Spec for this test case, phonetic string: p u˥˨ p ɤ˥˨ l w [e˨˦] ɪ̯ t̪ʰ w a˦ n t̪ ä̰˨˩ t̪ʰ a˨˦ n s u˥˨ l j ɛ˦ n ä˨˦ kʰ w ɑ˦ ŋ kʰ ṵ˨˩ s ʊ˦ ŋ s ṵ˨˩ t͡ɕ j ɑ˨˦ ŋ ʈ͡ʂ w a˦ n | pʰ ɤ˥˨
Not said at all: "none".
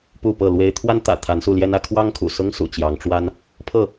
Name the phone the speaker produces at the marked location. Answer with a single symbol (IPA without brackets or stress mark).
e˦